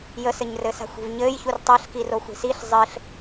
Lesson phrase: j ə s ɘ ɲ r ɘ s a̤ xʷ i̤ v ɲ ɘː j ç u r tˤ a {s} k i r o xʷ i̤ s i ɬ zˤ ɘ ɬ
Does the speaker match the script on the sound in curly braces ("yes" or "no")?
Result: no